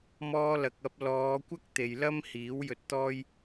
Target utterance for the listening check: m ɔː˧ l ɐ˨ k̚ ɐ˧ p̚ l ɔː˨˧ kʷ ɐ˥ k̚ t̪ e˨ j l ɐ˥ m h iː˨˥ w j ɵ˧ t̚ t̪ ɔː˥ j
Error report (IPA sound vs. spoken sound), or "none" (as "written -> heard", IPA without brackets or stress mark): none